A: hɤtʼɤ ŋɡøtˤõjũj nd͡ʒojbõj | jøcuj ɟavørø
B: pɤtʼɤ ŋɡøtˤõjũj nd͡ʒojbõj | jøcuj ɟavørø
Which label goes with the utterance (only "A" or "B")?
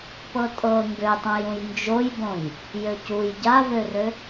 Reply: B